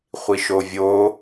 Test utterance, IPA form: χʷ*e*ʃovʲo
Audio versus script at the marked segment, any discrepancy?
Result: yes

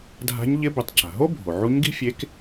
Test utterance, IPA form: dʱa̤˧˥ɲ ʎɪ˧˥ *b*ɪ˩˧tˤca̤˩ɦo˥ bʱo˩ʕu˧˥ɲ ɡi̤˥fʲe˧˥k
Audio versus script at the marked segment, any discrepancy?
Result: no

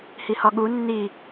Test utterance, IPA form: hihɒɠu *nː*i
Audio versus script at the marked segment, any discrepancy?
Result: no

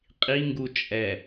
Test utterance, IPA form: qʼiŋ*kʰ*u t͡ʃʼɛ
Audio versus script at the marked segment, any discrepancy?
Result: yes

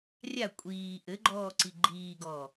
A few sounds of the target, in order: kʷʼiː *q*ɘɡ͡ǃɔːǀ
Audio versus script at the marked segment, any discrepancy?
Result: yes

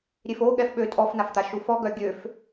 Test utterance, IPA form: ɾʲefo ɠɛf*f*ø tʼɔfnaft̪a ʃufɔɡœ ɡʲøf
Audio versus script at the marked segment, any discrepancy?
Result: yes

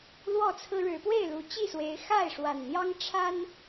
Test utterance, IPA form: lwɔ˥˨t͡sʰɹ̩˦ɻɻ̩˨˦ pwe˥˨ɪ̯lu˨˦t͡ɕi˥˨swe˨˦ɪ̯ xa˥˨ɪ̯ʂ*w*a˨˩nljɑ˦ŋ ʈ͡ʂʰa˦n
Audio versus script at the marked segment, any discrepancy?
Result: no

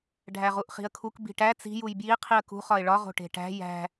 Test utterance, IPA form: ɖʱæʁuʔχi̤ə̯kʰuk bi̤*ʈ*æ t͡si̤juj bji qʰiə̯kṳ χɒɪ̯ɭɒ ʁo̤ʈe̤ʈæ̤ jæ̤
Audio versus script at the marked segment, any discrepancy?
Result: no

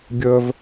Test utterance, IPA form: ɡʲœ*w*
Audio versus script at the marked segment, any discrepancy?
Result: yes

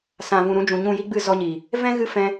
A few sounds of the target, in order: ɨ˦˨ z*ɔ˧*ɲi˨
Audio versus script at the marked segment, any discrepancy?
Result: no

